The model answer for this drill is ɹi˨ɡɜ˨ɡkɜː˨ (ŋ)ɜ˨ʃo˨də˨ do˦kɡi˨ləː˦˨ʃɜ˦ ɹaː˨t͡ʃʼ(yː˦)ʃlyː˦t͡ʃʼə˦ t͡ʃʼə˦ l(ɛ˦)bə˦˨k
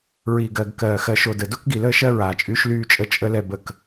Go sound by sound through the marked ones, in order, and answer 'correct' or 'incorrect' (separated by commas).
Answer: incorrect, correct, correct